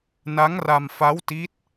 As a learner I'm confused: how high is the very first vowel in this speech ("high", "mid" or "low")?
low